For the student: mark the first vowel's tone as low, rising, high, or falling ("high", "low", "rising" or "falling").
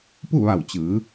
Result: falling